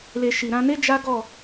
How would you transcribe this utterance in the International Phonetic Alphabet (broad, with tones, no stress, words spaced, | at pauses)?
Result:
le˨ ʃi˨ɾã˧ne˦ d͡ʒa˦ɡɔ˦˨